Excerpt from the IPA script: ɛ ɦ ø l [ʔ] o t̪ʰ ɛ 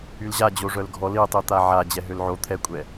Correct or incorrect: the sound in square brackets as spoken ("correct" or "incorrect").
incorrect